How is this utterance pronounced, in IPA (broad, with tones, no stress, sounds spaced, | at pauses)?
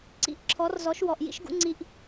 ǀ ḭ˧ ʔ ǁʰ ɔ˨˦ r z ɔ˨˦ ʃ w ɔ˨ ʔ j ḭ˦ ʃ ɡ ṵ˦ ŋ͡ǀ i˧ ʔ